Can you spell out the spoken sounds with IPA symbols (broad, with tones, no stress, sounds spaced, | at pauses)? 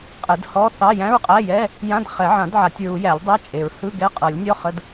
qʼ ɛ˨˩˦ d h ɔ˧˥˧ θ ɑ˧˥˧ j æ̃˧˥˧ ɹ qʼ æ˧˥˧ j ɛ˧˥˧ | j ã˧˥˧ d χ ɛ˨˩˦ ʕ ã˨˩˦ d ʕ a˨˩˦ tʲ ɹ u˨˩˦ j æ˨˩˦ lʲ dˤ æ˧˥˧ t͡ʃʼ e˨˩˦ ɹ h ɯ˧˥˧ ɡ ɛ˧˥˧ qʼ ɤ˨˩˦ lʲ nʲ ɔ˧˥˧ χ ə˧˥˧ d